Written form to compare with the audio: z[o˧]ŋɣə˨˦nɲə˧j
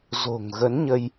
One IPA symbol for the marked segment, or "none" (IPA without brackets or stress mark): o̤˨˩